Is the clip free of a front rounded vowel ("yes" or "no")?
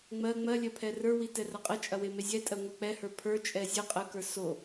yes